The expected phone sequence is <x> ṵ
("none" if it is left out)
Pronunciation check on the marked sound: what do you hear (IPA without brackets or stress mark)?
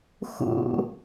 x